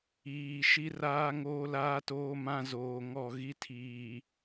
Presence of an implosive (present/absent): absent